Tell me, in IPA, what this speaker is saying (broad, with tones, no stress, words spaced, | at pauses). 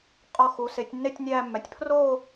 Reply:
qʼɒ˧˩ xu˩˧se˩˧tʲ nːe˥˧tʲnʲæː˥˧mːæ˧˩tʲ pʰro˥˧